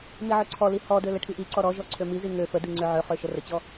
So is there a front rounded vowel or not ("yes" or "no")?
yes